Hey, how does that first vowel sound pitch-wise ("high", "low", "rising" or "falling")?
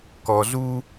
low